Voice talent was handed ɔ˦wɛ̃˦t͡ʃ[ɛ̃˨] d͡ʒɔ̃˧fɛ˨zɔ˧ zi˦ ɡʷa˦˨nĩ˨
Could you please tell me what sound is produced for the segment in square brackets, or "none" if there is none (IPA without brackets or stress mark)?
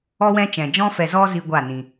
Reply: ɛ̃˨